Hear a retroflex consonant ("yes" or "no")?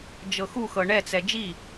yes